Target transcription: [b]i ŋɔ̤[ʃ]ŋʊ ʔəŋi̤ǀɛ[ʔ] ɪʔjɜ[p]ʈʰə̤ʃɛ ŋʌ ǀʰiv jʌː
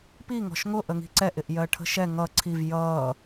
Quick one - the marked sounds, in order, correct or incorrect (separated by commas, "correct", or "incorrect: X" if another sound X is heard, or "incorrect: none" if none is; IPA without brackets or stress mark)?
incorrect: p, correct, correct, incorrect: none